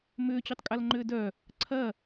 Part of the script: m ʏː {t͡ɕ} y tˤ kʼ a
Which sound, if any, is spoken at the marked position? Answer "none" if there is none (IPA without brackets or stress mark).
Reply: t͡ɕ